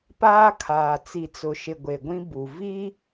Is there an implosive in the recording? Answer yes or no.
no